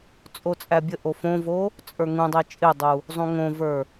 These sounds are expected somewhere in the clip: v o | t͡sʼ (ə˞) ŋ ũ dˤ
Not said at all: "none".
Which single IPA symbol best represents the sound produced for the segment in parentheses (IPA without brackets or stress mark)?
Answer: ə˞